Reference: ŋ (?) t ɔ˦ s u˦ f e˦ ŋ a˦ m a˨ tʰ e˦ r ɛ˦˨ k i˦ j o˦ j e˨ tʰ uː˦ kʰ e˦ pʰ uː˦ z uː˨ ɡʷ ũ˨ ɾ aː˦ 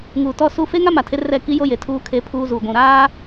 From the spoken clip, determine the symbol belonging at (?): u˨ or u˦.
u˨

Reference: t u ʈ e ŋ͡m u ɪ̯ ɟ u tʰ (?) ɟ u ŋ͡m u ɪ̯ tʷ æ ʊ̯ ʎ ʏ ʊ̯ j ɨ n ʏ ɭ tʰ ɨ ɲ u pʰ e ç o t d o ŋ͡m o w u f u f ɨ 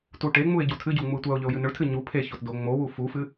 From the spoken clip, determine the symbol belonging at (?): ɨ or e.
ɨ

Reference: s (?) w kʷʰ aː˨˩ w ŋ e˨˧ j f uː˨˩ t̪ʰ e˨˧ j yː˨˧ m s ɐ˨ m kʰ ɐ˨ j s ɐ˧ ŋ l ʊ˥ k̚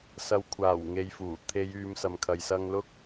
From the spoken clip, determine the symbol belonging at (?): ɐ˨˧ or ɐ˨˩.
ɐ˨˧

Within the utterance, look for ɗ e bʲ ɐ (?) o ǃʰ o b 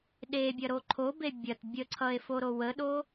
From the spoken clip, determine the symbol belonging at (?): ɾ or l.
ɾ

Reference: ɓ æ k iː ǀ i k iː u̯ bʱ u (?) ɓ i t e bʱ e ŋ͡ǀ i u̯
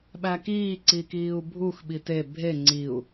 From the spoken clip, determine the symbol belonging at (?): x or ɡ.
x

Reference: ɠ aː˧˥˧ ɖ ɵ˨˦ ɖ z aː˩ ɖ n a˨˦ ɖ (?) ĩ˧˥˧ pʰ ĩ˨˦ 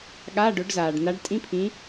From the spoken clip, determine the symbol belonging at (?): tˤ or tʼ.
tʼ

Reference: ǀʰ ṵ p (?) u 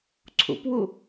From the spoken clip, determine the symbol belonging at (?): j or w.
w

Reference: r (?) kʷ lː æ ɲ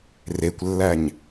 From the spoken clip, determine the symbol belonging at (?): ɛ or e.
e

